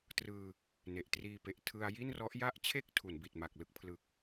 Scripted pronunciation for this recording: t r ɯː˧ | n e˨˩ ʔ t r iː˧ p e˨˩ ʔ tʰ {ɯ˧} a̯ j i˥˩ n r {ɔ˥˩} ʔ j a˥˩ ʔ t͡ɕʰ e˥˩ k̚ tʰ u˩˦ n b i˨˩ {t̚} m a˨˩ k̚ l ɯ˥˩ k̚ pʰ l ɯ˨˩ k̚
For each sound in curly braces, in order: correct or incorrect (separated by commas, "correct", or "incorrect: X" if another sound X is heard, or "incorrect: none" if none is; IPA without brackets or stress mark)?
correct, incorrect: ɔ˦˥, correct